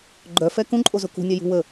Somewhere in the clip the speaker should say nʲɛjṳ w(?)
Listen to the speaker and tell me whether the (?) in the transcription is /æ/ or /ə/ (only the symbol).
ə